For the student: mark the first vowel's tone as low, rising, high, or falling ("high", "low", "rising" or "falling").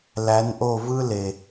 rising